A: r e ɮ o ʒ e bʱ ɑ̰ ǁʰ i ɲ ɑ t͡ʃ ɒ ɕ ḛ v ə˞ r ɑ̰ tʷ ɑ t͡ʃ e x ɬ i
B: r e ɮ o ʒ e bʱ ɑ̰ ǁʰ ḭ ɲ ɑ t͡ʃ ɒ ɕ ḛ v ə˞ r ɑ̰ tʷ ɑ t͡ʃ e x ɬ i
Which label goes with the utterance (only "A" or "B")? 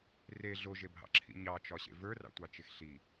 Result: B